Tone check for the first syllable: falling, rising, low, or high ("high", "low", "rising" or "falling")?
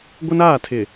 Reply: high